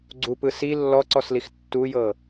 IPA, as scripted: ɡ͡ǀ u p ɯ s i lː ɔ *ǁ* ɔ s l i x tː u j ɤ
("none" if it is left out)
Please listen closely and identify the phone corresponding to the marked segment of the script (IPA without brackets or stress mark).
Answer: ǀ